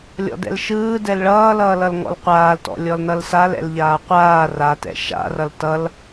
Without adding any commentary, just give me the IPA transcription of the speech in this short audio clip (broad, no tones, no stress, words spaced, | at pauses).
lʲɔ̰dɛ̰lʃɯː dɛlɭʌːlʌːlʌl ŋɔ̰lqʷaːltɔ̰ lʲɔlnʌlsal ɛ̰lʎaːqʷaː ratɛ̰ ʃa̰rʌl tʌl